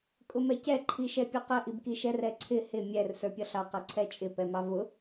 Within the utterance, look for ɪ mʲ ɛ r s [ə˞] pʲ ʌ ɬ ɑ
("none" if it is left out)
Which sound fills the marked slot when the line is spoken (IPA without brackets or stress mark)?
ə˞